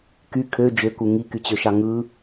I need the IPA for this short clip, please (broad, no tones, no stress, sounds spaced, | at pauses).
k y kʰ ø d͡ʒ ø k u ŋ i k y t͡ɕ ø ʃ ɑ ŋ ɯ